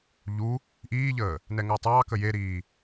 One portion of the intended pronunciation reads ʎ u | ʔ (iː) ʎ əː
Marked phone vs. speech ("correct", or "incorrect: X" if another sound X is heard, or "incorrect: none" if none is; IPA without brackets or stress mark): correct